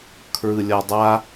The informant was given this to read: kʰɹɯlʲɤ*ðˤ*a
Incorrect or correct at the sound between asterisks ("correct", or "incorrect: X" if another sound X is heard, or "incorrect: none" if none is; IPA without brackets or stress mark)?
incorrect: dˤ